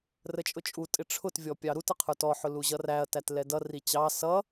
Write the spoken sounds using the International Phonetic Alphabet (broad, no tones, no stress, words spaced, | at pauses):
rət͡ʃʼʊt͡ʃʼutʼɪ ʈ͡ʂʰʊtvʲɔ pʲɑɾutə qʰə˞tɔħʊ luʑʌræɐ̯tæt lɛdʌri t͡ɕɑ sʌ